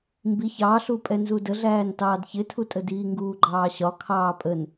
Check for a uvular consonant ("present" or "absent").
absent